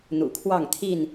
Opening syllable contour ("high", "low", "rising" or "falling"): low